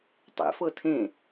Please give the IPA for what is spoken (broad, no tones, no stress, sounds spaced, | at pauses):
tˤ ḛ f ɤ tʰ ẽ